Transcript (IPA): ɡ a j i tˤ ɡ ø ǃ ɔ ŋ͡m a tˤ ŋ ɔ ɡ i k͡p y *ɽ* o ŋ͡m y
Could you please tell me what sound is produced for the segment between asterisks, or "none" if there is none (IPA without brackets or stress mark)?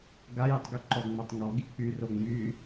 r